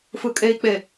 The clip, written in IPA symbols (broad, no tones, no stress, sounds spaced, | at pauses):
f ɯ kʼ e i̯ k͡p e